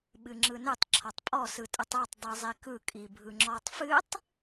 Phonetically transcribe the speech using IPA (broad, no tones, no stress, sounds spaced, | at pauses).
ɓ ɨ ŋ͡ǁ ɯ n ɨ tˤ ǁʰ ɔ tˤ pʼ ɔ s ɯ tʼ ɨ tˤ a tˤ dˤ i zˤ i k ɯ kʼ i bʱ ɯ ŋ͡ǁ ɔ tˤ f ɨ tˤ